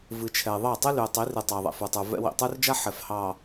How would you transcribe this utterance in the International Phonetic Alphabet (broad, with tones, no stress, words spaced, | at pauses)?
vɨ˨t͡ʃʰɛ˨ ðˤɑ˦˨ tˤɨ˦ly˨ə̯tˤi˨˦rɨ˨ tˤɑ˨ðˤɛ̰˨fə˞˨tˤə˞˨ vɛ̰˦ wḭ˨tˤə˞˦rd͡ʒa˦ ħɛ˨fhɑ˨